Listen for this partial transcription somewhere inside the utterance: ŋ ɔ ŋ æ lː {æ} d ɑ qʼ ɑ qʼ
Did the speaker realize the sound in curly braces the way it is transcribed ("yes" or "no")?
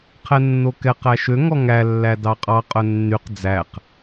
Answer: yes